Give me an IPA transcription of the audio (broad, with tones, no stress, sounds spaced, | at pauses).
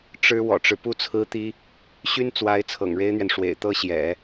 ʈ͡ʂ ɻ̩˥ w ɔ̰˨˩ ʈ͡ʂ ɻ̩˦ p u˥ t͡sʰ ɹ̩˥ t̪ i˥ | ɕ y˥ n t͡s w a˧˥ ɪ̯ t͡sʰ ɤ̰˨˩ ŋ ɻ e˥ ɪ̯ n̪ ɥ ɛ˨ n ʂ w ḛ˨˩ ɪ̯ t̪ ɤ˥ ɕ j ɛ̰˨˩˦